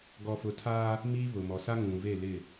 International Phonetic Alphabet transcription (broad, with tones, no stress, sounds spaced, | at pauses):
ɡ ɔ˨ f ʊ˨ tʰ aː˦ | m iː˦ β ʊ˨ m ɔ˨ s a˦ ŋ ũ˨ v e˦˨ l ɪ˦˨